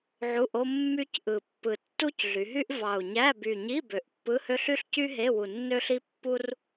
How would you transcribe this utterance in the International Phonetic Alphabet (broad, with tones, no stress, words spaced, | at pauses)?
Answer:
ʕu˧˥˧ʔo˥ mːy˥cʔɯ˨˩pːɯ˨˩ tːu˥cɮy˩˧ɦy˥ʔ vɑ˨˩u̯ɲæ˧˥˧ by˨˩ɲi˧˥˧ bø˨˩ʔpːɯ˧˥˧hø˥ɬ y˥ɬcy˥ ɦe˧˥˧wu˨˩nːø˥ɬi˥ pːu˥r